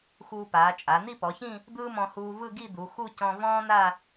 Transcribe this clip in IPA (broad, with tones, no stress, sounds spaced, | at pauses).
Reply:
x uː˧ p aː˩˧ t͡ʃʼ a˩˧ n̪ i˥˧ p ɔ˩˧ ç ĩ˥˧ | d̪ ɯː˥ m ɔ̃˧ h uː˧ v ɯ˥˧ ɡ i˥˧ d̪ u˩˧ x u˥˧ c ɔ̃˧ v ɔ̃ː˥ n̪ a˥˧